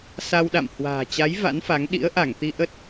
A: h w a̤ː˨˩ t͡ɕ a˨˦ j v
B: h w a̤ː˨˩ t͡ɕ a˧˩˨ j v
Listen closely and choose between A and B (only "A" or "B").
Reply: A